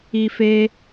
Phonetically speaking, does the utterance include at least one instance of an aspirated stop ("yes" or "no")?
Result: no